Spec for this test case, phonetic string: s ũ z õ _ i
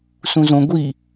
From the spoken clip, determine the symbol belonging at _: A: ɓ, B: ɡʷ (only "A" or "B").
B